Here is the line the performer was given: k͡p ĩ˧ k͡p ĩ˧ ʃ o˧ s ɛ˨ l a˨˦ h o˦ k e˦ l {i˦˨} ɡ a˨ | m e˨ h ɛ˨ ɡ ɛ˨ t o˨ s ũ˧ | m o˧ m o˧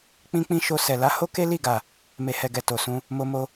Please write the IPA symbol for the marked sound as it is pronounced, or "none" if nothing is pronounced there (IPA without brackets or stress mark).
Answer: i˦˨